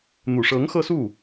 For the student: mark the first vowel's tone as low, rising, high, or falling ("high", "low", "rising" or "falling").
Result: low